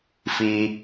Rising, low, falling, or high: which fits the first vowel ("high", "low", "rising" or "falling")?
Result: low